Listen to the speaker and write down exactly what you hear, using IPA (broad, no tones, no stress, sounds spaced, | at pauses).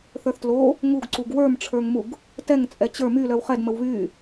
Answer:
θ ə˞ θ t l o | ŋ u ɡ ǀ u ɡ w ə˞ m ʈ͡ʂʰ ə˞ ŋ m u ɡ | t ɛ ŋ t͡sʼ ɛ t͡ɕ ə˞ m y l œ w χ ɛ d m ə w β y